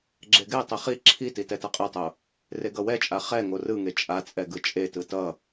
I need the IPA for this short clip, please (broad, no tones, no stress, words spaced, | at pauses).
ɡ͡ǁeɡɛtˤi χi ǁʰiti tɛtʌqʼetˤo | reɡʌwɛt͡ʃʼa χɛŋo rɯŋe t͡ʃʼat͡sʼɛ ɡɯt͡ʃʼetɯ tʌ